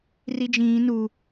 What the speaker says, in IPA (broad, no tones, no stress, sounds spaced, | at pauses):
r i d͡ʒ ĩː n u